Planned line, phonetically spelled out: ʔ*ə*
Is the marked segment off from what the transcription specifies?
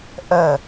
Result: no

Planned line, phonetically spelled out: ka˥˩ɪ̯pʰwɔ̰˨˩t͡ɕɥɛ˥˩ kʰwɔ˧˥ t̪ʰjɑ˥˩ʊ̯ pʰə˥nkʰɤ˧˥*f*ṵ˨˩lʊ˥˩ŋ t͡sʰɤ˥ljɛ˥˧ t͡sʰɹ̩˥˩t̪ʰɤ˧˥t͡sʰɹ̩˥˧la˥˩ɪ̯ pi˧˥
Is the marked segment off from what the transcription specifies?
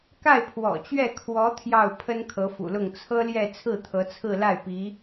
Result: no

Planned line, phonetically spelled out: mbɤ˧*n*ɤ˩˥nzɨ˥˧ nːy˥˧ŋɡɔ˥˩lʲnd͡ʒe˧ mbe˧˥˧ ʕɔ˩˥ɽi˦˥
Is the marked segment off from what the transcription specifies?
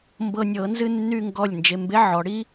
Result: yes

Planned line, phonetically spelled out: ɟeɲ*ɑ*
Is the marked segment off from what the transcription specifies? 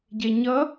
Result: yes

